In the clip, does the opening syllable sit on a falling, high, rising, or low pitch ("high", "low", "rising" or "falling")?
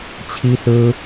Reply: high